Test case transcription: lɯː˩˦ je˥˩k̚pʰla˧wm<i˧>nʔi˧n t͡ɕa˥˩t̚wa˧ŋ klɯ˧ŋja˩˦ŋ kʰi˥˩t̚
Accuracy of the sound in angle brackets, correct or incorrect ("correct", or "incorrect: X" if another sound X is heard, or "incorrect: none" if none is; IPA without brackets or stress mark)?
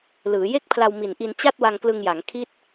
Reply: incorrect: i˨˩